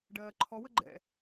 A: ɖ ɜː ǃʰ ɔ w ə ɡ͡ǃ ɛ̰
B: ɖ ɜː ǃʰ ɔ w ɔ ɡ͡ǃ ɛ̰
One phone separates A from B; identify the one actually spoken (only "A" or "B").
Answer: A